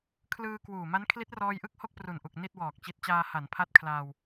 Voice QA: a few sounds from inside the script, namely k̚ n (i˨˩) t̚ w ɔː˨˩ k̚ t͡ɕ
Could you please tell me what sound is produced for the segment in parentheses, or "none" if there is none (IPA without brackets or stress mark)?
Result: i˥˩